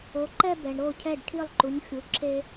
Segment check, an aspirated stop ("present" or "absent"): present